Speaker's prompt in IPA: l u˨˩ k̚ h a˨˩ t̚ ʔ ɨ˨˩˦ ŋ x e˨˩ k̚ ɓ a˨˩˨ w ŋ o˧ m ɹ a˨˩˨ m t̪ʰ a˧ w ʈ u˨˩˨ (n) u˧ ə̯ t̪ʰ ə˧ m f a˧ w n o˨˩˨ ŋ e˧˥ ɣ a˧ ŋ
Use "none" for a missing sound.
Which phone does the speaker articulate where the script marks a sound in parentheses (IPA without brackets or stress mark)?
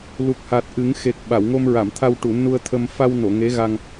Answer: n